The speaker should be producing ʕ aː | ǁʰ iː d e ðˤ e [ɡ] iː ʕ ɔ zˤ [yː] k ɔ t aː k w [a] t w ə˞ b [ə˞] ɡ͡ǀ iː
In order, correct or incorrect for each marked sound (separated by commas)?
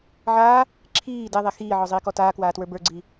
incorrect, incorrect, incorrect, correct